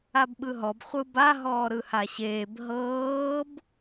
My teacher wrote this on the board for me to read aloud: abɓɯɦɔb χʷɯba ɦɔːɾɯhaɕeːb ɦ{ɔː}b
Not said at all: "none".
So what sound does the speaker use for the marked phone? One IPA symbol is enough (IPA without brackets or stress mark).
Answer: ɤː